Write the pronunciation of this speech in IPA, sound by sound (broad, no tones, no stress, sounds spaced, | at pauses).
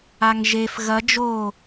a ŋ ʒ e f ɣ ɐ d͡ʒ o